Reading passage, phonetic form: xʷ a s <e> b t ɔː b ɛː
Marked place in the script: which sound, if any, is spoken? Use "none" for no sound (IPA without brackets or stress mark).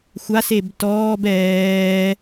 e